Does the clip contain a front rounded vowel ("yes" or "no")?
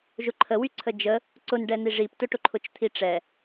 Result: yes